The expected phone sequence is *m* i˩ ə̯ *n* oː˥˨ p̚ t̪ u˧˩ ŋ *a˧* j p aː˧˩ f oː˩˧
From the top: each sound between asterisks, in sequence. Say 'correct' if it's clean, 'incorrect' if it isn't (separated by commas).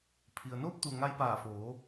incorrect, correct, correct